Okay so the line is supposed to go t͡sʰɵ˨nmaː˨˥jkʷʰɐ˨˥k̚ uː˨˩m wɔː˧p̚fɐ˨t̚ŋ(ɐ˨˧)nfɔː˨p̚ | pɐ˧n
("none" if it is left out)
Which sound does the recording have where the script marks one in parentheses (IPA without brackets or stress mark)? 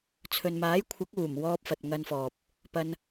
ɐ˧